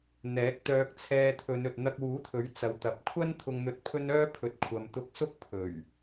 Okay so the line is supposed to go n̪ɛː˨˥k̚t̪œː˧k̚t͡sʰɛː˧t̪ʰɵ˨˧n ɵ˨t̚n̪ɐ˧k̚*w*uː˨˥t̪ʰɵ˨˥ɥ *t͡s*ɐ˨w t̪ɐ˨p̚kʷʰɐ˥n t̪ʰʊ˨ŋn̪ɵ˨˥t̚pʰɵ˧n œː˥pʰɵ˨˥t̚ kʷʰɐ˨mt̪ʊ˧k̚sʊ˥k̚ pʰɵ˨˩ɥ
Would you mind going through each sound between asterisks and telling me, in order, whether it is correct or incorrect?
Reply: correct, correct

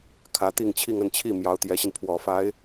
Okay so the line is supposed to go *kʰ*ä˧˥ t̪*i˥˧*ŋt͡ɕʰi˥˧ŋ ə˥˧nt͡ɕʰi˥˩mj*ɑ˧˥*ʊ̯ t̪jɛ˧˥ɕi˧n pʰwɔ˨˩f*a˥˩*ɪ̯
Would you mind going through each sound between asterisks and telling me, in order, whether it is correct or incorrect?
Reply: correct, correct, correct, incorrect: a˧˥

